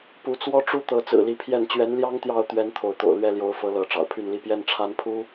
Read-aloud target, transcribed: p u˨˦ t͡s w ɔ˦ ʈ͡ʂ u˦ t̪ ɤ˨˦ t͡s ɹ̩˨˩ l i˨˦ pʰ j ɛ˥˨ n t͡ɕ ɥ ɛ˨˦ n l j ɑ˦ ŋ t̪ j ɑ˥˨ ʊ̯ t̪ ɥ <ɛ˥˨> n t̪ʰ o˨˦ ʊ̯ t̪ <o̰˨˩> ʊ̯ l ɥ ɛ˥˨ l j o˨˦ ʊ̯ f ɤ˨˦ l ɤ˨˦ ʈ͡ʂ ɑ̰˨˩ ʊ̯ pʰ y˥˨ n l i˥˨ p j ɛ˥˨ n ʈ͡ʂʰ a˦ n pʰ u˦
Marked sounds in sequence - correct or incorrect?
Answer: incorrect: ɛ˦, correct

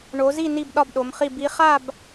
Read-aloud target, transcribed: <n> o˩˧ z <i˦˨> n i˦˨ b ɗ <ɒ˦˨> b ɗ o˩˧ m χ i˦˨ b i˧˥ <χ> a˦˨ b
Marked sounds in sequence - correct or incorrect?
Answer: incorrect: ɳ, correct, correct, correct

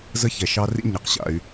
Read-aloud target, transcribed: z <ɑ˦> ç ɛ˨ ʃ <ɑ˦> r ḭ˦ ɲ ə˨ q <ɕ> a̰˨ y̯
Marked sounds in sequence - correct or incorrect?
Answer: incorrect: ə˦, correct, correct

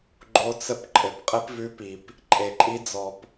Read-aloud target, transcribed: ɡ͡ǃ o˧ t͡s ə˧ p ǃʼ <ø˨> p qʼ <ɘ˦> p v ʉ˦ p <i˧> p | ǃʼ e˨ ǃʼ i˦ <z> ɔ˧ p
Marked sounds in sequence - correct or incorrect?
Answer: incorrect: ɘ˨, correct, correct, incorrect: d͡z

